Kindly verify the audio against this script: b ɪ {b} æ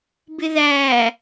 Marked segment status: incorrect: ð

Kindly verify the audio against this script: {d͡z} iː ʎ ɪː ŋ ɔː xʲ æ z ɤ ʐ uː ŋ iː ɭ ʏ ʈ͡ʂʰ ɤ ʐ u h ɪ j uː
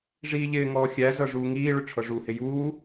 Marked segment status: incorrect: ʐ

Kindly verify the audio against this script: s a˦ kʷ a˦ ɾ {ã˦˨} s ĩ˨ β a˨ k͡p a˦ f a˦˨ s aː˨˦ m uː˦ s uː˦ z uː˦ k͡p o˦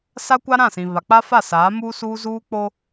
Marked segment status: correct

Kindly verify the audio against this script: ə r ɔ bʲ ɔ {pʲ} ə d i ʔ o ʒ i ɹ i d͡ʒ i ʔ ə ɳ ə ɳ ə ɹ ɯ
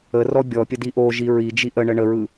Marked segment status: correct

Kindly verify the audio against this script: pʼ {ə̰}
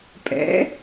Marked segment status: incorrect: ɛ̰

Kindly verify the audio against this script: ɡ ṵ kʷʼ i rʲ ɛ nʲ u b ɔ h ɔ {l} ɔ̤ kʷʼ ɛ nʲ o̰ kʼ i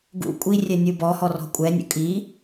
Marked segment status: incorrect: r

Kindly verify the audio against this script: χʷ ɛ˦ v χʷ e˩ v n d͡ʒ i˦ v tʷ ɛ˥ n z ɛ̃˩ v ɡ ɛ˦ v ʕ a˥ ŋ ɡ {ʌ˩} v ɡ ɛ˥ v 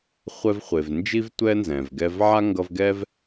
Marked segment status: incorrect: ʌ˦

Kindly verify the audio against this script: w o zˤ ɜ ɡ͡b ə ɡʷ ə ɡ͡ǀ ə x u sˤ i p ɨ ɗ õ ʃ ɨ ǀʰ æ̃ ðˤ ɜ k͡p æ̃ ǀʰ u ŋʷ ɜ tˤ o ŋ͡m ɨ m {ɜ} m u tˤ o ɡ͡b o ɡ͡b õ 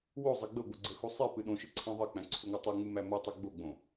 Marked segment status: incorrect: æ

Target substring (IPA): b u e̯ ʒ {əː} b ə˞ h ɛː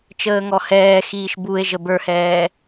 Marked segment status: incorrect: ə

